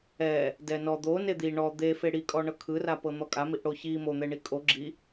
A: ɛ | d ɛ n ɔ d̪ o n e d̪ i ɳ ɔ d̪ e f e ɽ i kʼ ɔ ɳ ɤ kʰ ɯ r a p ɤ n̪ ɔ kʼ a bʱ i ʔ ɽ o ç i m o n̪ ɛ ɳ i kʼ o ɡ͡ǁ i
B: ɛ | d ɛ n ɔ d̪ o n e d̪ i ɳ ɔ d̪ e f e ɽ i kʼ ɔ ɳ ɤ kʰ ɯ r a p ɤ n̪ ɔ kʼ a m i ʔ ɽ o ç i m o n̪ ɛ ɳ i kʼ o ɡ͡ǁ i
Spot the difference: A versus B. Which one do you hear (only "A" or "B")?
B